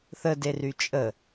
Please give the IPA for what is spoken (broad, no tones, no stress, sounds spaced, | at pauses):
θ ə d e r y t͡ʃʼ ə